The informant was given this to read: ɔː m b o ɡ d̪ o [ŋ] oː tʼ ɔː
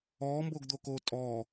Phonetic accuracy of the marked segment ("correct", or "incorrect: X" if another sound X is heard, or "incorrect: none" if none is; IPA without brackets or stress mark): incorrect: k